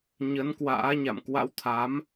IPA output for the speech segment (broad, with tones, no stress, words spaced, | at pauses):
ɲə˨˦nkwa̰ː˧˥ɲa̰˧˨m kwa̰˧˥wt̪ʰa˨˦m